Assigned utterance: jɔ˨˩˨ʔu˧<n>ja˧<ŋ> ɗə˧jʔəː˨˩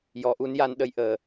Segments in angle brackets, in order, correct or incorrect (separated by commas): correct, incorrect